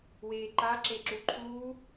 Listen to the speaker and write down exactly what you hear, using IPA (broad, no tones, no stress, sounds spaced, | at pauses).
w eː ǃ a ǁ e ǁ u ǃʰ uː